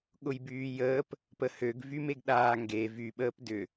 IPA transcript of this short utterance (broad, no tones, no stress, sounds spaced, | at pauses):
ɠ ʊ j b yː j əː p | p ə h ø ɡ v y m e ɡ ɗ aː ŋ ɡ e v y ɓ əː p d ʏ